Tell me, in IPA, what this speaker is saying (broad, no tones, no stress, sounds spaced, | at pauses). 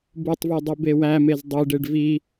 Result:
b u tˤ v e dˤ i b e w æ m e z dˤ i ɖ e ɖ v i